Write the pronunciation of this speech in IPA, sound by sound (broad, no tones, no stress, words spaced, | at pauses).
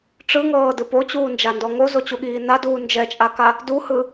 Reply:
ʈ͡ʂɯŋɤːdɯp ot͡ɕuːnd͡ʒandɔ ŋozot͡ɕuɠiː naduː nd͡ʒɛt͡ʃʼaka | duhɯ